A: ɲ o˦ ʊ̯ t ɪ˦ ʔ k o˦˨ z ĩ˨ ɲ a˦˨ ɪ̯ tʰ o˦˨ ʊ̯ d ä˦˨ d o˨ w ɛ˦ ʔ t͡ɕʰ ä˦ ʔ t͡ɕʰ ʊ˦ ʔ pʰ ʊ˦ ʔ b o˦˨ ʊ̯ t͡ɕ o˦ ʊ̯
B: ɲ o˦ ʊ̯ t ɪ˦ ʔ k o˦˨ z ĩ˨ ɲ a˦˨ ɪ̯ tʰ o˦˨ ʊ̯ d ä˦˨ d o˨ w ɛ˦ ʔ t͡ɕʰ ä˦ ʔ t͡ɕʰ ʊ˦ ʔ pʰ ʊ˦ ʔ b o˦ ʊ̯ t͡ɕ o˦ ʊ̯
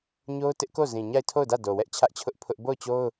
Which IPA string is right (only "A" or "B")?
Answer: A